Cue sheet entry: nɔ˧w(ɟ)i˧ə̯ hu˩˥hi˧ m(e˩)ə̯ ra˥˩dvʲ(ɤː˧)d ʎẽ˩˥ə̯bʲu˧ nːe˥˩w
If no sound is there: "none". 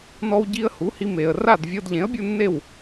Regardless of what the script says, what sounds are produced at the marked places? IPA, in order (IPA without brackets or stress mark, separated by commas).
ɟ, e˩, ɤ˧